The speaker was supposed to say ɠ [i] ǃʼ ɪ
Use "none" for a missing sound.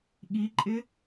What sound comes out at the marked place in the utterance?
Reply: i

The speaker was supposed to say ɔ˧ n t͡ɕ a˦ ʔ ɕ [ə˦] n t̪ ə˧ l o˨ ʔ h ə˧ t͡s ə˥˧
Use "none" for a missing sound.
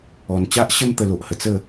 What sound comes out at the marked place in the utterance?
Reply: ə˦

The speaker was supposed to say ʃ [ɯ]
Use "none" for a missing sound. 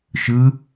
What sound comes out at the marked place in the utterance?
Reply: ɯ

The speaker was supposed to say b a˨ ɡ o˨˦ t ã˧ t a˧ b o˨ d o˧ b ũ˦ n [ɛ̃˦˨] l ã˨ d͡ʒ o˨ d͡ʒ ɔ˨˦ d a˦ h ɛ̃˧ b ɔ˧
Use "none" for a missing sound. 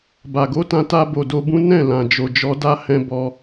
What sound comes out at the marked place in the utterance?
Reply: ɛ̃˦˨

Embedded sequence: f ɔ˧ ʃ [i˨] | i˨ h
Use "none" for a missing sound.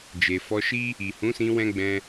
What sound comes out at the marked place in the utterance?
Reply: i˦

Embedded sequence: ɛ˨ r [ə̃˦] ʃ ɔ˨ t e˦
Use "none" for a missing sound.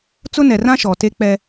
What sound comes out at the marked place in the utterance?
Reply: ã˦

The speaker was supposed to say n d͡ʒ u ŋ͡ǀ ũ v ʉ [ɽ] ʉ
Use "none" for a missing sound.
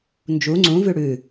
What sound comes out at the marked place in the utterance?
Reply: ɽ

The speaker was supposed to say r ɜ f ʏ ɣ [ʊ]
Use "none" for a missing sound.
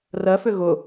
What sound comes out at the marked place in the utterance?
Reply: ʊ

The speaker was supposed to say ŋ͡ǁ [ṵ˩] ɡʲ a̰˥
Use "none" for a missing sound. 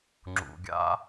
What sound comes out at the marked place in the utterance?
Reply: ṵ˩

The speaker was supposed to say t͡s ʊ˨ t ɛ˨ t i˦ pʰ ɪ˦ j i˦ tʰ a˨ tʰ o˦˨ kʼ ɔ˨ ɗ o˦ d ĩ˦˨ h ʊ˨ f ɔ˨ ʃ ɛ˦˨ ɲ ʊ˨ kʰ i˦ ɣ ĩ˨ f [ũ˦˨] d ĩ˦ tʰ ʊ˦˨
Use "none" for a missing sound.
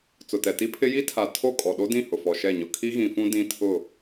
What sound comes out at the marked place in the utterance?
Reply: ũ˦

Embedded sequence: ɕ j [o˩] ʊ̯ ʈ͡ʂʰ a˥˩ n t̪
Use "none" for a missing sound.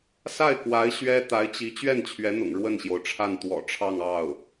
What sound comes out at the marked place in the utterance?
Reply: o˩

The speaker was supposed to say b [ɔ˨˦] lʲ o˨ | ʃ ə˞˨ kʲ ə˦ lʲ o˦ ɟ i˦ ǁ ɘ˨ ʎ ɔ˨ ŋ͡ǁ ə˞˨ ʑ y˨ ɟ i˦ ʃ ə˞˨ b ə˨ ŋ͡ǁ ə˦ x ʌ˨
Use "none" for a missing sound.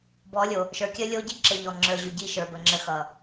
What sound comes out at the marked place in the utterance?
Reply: ɔ˨˦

